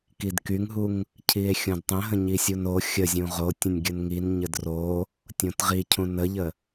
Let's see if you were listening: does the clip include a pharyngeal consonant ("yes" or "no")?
no